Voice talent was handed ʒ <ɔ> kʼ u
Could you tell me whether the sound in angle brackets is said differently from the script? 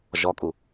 no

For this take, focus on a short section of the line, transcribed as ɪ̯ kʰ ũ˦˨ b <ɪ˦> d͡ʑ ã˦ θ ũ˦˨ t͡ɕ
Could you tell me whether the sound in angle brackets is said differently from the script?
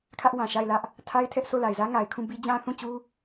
yes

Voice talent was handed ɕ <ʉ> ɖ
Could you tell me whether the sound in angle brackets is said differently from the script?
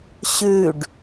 no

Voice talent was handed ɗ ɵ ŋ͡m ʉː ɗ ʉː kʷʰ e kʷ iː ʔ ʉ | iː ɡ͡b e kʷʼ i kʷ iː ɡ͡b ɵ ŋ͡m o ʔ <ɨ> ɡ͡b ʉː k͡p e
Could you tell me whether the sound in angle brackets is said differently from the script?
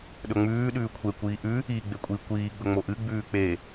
no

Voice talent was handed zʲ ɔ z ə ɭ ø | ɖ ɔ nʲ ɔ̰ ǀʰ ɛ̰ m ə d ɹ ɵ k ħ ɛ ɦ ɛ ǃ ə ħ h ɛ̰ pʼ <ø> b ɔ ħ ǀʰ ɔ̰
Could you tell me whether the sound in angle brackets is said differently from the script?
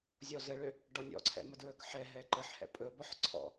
yes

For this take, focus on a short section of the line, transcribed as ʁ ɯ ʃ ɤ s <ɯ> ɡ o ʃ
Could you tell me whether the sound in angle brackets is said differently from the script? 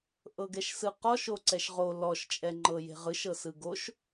no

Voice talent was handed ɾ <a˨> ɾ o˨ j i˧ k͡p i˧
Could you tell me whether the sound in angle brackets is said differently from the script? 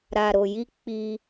no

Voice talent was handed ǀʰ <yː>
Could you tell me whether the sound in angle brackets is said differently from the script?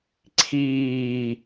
yes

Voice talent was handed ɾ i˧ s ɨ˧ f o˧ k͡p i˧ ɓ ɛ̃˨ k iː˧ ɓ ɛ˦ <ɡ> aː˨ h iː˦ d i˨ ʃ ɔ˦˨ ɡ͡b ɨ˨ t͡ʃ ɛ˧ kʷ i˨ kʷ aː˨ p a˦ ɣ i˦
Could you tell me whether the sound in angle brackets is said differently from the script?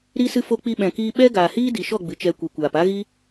no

